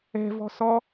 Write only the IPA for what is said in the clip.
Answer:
ɛ̤ v ɔ̤ s ɔ

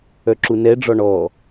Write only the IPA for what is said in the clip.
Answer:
œ ǁ u n ɛ ɖ͡ʐ ɔ ɳ ɔ

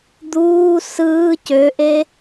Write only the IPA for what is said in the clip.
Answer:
d̪ uː s ɯː c ø ʔ e

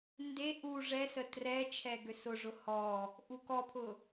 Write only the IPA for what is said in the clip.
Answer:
n d e ʔ u ʐ ɛ s ə t r ɛ t͡ʃʰ ɛ ɡ ø s ʊ ʐ ʊ h ɔ | ʔ u k ɔ pʰ ʊ

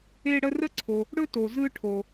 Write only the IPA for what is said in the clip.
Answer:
e˦ ɽ ə˦ r ə˥ ǀʰ o˨ | ɽ ɵ˥ t o˨ z ɯ˦ ʈʰ o˨

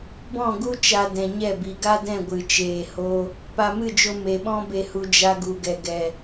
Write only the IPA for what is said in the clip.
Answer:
b ɔ̃˦˨ ɡ u˦ t͡ʃ a˧ d ɛ̃˨ ɲ ɛ˦˨ b i˨ ɡ a˦ d ɛ̃˦˨ ɡʷ ɨ˧ t͡ʃ eː˦ h o˦ | p a˧ m ɨ˦˨ d͡ʒ o˧ m e˨ ɓ ɔ̃˦ b e˧ h u˧ d͡ʒ a˦ ɡ u˧ ɡ ɛ˧ ɡ ɛ˨

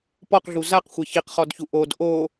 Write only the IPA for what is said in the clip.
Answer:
p ɔ q ɮ u z a q xʷ e ç i q χ ɔ d ç u ʔ o d ʔ o

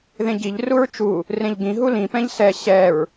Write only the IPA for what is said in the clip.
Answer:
ð ẽ ɟ i ʎ r u ɹ t͡ʃ u | r ẽ ʎ ɡ ĩ ɦ u l ĩ p ɛ̃ ʎ s ɛ ɕ ɛ ɹ

